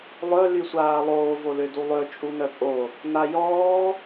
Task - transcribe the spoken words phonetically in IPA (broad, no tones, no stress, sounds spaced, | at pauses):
lˠ œ l y sʷ aː lˠ oː v o l ø d u lˠ ø t͡ʃʼ u n œ pʼ o | n a j ɔː